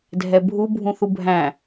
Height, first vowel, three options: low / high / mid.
mid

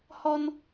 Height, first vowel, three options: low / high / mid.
mid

